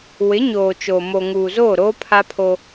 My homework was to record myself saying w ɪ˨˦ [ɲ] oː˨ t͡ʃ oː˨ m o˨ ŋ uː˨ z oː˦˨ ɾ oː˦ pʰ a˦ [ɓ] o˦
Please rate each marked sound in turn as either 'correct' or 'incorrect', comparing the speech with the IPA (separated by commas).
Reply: correct, incorrect